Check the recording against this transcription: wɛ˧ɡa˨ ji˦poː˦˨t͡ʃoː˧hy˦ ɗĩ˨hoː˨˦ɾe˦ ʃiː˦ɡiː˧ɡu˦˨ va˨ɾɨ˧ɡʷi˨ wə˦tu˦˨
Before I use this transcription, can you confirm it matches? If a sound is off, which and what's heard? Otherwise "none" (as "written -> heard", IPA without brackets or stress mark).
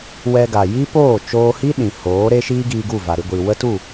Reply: y˦ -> i˦